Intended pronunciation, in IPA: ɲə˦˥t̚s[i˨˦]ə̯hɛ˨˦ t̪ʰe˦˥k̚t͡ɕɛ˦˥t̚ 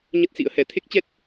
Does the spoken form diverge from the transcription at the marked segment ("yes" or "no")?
yes